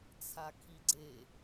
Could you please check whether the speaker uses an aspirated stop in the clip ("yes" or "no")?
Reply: yes